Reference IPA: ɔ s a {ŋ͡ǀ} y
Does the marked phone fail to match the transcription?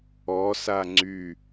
no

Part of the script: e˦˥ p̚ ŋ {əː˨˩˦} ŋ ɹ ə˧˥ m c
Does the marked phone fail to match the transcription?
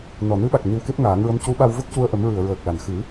yes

